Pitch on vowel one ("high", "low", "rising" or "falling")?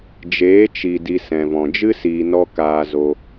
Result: rising